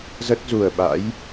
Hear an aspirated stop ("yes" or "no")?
no